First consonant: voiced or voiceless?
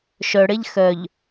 voiceless